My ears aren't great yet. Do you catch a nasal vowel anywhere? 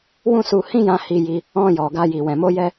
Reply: yes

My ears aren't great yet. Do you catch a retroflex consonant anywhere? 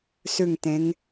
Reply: no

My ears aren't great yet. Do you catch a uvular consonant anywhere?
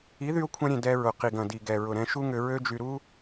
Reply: yes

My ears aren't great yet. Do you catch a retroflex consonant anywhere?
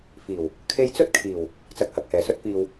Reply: no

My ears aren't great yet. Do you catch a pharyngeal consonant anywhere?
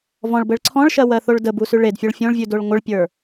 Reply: no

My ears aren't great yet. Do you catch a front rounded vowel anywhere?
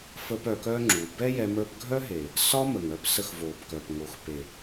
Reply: yes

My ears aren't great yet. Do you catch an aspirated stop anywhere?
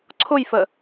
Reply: yes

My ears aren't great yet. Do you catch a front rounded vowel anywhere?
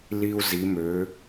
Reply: yes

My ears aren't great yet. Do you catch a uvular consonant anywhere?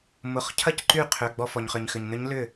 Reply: yes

